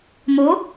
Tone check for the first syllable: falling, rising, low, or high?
rising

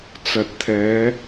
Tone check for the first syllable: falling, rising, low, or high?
low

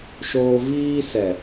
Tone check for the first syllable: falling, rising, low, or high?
high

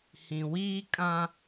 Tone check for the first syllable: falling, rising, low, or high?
low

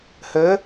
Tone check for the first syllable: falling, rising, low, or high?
rising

